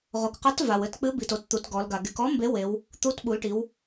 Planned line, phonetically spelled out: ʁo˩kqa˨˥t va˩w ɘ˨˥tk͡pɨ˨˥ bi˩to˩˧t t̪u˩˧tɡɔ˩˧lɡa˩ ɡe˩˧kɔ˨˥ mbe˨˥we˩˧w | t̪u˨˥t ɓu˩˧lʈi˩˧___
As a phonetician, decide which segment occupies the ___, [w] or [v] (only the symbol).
w